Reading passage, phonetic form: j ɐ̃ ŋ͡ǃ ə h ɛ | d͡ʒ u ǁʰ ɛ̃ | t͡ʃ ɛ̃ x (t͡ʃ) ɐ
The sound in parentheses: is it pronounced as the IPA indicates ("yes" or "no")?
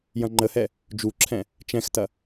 no